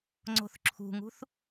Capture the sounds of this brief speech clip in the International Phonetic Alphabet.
ŋ͡ǀo̤θǁʰṳŋṳθ

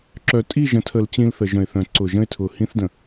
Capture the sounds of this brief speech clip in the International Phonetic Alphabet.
ǁœ˨tʼi˦˨ʒə̃˨tʰə˨l t͡ɕĩ˦lθə˨ʒœ̃˨ɪ̯θœ̃˨ ǀʊ˨ʒə̃˦ɪ̯tʰʊ˨ hĩ˦θdə̃˨

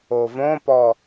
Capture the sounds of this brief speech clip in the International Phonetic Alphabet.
ovõpɔ

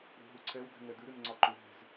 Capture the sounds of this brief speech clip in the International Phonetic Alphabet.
ɾṳɦuǀʰɛwd̪ɛ̤ ŋɛd̪ʉɾʉn ŋ͡ǀɒǃʏɦɛ̤z

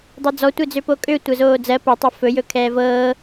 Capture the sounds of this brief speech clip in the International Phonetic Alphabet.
dˤɛd͡zɔtʷed͡zø pokʼø tʷɜzoːd͡zɜ pɤtˤɵ fɵjɵ kʰɛːvɤː

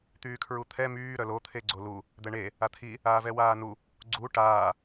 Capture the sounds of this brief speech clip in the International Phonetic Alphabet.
t̪yːkʰɹut̪ʰɛ myː ɾœlo t̪ʰeɡ͡ǀolu | d̪ɛɳe | at̪ʰi | aːvɛwaːnu | ɡ͡ǀu ʈaː

